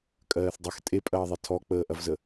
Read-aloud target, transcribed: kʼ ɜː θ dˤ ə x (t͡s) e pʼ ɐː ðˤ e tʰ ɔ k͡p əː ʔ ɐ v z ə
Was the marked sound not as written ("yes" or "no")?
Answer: yes